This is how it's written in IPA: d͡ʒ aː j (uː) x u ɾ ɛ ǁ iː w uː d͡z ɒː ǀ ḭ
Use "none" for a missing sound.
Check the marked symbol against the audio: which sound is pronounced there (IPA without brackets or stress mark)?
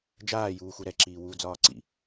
uː